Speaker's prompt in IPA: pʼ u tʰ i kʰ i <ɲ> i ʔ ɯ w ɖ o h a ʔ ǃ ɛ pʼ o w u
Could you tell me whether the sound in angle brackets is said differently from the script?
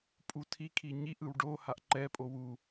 no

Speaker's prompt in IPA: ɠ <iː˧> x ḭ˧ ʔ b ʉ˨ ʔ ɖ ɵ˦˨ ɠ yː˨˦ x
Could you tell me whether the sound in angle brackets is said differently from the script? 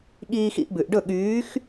no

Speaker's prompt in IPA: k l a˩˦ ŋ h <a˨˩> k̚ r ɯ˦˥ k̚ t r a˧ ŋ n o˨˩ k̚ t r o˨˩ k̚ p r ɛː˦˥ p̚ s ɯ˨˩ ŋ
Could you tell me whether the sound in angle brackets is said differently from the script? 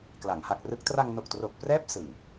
no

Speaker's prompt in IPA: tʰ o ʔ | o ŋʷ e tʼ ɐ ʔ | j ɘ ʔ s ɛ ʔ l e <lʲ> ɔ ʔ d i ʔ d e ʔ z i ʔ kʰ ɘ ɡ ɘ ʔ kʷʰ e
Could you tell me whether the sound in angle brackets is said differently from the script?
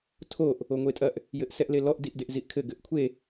yes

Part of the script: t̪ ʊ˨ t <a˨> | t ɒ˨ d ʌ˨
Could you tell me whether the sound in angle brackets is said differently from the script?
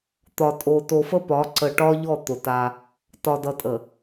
yes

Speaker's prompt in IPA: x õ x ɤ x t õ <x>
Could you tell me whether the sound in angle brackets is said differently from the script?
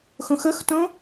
yes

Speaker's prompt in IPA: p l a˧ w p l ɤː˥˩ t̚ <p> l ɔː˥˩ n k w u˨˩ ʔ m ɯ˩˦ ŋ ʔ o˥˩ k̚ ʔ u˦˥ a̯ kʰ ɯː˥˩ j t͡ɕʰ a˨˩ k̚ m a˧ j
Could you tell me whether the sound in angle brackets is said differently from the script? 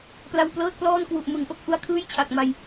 no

